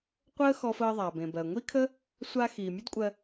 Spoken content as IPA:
qʷ əː˥ x ɔ˧ f əː˧ ðˤ a˩ b ẽ˩ b ɜ˩ ŋʷ i˥ kʰ ə˥ | sʷ a˧ x iː˩ mʲ ə˥ d kʷʼ ɜ˧

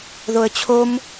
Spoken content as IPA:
ð o ə̯ t͡ɕʰ o m

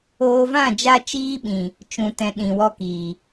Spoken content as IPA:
oː˦ v ã˦˨ d͡ʒ a˧ t͡ʃ iː˦ ɓ ĩ˨ | t͡ʃ ũ˧ t ɛ̃˧ ɗ ĩ˨ w ɔ˧ k iː˨

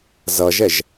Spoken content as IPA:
z ʌ ʒ ɛ ʒ

